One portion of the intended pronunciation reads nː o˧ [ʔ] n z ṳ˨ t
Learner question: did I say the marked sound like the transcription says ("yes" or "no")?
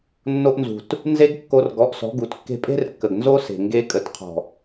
yes